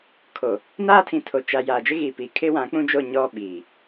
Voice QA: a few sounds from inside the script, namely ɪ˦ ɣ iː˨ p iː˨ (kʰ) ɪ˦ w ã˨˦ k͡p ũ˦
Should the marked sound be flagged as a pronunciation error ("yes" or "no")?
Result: no